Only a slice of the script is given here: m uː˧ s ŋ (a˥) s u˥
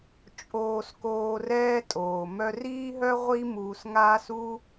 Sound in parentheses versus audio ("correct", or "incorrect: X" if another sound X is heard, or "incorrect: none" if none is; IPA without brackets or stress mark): incorrect: aː˥